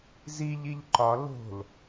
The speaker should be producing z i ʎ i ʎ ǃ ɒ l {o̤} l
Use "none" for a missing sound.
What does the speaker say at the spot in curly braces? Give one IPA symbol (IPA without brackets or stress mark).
o̤